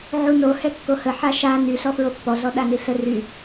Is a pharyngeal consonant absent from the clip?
no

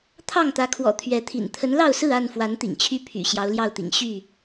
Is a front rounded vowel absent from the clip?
no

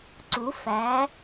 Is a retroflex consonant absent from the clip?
yes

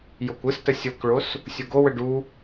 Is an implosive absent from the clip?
yes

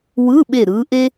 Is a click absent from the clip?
yes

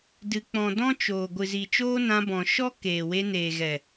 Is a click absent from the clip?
yes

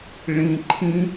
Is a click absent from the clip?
no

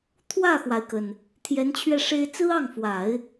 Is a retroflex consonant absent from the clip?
no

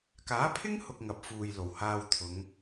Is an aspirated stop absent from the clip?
no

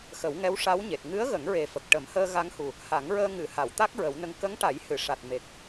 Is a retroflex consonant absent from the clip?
no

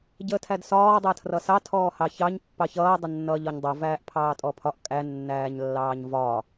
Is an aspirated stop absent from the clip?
no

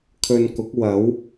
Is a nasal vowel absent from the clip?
yes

